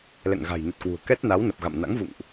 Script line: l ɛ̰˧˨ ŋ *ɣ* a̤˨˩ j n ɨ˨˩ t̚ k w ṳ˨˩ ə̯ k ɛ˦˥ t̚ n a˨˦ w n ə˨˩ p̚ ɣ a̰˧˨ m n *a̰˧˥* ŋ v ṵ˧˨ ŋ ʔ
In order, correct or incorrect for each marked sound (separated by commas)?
correct, correct